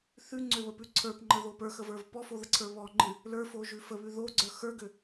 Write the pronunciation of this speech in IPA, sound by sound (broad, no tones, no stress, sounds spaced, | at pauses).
θ ʉ ŋ͡ǀ ø β ə p ʉ ǀʰ ə˞ p ŋ͡ǃ ə ð o p ə˞ x ə v ə˞ v p ɔ f o ð ə ǀʰ ə˞ β ɔ ŋ͡ǃ ɨ | l ə˞ f o ʒ ʉ f ə β ʉ ð o ɡ͡ǀ ə˞ x ə˞ ɡ ø